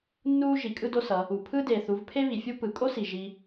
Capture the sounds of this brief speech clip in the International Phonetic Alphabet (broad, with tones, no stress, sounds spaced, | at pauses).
nː uː˥ ʒ i˩˧ kʼ ɯ˥ d o˥ s ʌ˩˧ | u˩ pʰ ɯː˥ d eː˩ θ u˩˧ v pʰ e˥ β i˩ fʲ u˥ p ɯ˩˧ kʼ o˥ s i˩ ʒ i˧